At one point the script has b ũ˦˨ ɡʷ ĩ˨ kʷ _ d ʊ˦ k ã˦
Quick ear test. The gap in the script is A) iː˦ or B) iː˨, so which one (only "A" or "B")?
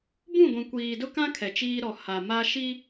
B